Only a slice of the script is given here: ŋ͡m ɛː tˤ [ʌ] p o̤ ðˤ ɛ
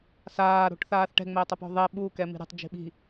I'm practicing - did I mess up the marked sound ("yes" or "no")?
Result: no